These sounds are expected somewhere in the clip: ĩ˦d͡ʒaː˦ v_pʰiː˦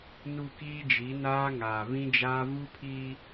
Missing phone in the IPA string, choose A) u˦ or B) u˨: A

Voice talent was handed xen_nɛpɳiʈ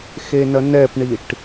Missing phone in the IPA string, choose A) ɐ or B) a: A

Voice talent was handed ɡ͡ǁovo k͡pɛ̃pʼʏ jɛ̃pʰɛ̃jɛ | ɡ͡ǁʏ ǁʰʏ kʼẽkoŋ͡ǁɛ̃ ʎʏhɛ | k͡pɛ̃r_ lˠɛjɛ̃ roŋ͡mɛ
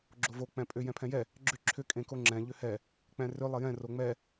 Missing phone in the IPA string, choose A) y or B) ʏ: B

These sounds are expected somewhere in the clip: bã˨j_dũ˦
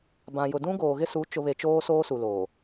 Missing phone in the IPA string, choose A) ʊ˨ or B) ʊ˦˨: A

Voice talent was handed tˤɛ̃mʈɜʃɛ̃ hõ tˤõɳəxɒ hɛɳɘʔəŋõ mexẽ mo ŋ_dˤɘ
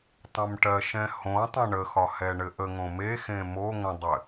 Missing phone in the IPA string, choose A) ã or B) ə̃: B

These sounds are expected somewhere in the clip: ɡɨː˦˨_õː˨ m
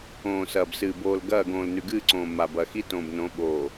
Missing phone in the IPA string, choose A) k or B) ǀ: B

